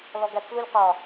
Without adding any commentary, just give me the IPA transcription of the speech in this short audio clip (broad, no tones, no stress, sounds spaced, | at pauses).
l ɔ ɡ æ t͡s l u lʲ q ɒ